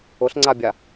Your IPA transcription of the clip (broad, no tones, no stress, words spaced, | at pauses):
ʊɬŋ͡ǀabʲa